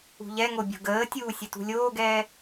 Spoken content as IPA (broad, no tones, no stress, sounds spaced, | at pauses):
ṳ ʎ ɛ ŋ o bʲ o̤ ɡ əː tʲ uː sʲ ʊ t ṳ lʲ oː ɡ ɛː